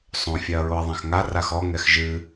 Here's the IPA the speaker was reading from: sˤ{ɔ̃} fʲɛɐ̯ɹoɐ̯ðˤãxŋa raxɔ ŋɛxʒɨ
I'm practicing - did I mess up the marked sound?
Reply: yes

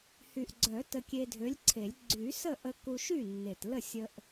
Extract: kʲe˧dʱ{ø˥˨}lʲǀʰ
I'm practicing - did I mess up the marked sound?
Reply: yes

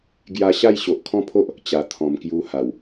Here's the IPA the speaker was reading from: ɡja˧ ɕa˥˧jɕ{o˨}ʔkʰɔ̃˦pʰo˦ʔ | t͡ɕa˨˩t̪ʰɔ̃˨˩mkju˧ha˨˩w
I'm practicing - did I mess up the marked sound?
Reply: no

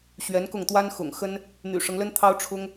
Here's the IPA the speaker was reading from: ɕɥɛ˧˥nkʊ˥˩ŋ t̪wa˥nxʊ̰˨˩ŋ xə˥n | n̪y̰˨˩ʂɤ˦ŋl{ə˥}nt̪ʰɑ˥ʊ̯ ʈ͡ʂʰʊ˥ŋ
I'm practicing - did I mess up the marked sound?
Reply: no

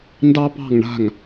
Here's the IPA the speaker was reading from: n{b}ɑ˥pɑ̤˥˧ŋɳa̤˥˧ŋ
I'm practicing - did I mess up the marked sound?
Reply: yes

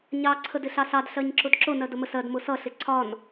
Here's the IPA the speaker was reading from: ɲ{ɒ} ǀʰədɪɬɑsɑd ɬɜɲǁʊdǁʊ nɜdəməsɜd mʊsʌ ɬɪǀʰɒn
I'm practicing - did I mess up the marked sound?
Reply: yes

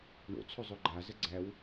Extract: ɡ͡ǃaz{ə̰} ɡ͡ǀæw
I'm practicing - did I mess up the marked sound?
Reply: yes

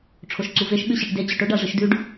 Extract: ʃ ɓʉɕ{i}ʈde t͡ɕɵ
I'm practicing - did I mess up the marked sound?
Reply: no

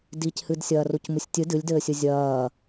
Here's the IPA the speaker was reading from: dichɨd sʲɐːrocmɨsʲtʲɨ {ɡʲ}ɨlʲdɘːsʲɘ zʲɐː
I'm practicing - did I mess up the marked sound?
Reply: yes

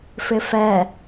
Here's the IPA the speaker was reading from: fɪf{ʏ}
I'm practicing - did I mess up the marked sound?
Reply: yes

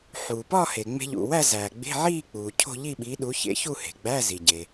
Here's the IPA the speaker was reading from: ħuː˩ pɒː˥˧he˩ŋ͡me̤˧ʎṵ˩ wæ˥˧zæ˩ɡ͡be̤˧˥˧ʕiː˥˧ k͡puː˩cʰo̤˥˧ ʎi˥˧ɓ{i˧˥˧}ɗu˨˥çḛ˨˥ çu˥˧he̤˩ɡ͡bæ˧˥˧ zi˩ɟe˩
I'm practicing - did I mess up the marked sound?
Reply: yes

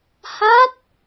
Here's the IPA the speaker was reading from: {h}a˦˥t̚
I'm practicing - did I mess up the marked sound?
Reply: no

